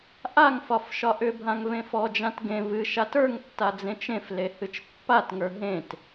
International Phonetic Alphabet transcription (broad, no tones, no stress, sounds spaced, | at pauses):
ʔ a ŋ f ɒ f ʃ ɒ ʔ ʏ bʱ ã ŋ v ẽ f ɔ d͡ʒ ã t ɡ ẽ v ɨ ʃ a t ə˞ ŋ tː a d͡z ẽ t͡ʃ ẽ f l e h ɨ t͡ʃ pː a t ŋ ə˞ ɦ ẽ t